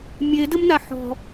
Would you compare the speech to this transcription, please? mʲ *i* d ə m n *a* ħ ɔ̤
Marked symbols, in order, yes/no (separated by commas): no, yes